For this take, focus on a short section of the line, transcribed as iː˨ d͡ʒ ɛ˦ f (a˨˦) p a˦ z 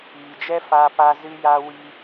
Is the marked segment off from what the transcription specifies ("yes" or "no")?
yes